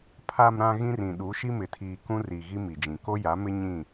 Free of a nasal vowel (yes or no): no